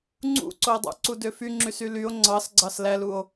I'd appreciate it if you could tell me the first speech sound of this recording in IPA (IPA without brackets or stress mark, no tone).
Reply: ŋ͡ǀ